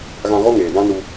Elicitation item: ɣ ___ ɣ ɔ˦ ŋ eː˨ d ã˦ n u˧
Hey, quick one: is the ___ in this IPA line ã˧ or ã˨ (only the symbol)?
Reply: ã˧